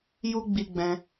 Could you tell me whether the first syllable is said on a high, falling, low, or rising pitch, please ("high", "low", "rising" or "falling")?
high